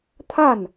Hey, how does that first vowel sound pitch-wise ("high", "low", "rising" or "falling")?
falling